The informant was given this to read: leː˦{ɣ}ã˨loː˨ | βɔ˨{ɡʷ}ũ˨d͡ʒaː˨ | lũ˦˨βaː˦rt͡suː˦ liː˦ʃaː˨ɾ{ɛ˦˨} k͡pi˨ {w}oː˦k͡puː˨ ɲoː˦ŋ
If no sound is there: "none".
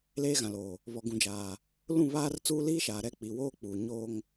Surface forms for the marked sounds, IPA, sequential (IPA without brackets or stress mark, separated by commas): ɣ, ɡ, ɛ˦˨, w